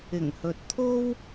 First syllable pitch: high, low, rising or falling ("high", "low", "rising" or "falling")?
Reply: low